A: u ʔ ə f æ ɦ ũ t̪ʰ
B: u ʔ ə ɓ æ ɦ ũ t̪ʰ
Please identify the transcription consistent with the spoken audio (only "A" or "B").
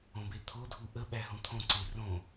B